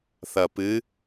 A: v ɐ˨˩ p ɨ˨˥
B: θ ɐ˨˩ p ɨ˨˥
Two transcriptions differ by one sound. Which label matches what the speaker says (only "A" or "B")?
B